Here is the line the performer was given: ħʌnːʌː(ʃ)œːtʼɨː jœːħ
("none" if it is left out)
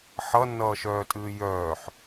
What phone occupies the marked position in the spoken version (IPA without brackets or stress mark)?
ʃ